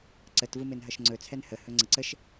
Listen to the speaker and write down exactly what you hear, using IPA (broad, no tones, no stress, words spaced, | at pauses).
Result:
ǀətvɯ menɦʌʃŋ͡ǀɵt͡sʰɛn hə hɵŋ͡ǀəǀəʃ